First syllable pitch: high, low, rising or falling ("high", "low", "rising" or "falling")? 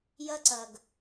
high